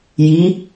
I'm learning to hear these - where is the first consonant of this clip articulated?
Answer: palate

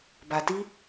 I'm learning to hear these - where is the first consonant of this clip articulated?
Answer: lips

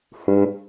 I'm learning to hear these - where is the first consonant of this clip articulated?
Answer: throat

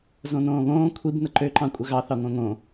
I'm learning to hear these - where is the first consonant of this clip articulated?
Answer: tongue tip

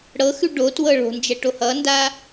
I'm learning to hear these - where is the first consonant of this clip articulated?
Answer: retroflex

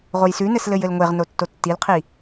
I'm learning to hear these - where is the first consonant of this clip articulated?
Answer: uvula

